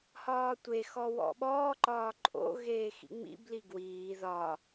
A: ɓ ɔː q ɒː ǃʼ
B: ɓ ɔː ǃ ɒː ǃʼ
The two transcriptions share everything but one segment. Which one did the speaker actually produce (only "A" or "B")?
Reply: B